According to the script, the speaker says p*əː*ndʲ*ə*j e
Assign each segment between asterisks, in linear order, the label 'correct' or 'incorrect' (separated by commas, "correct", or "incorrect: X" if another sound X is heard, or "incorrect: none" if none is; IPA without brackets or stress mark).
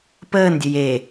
correct, correct